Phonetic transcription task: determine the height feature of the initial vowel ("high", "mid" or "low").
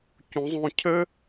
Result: high